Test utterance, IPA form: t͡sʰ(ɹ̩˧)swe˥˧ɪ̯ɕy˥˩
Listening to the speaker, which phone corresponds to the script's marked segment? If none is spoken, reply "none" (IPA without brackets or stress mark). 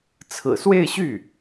ɹ̩˨˩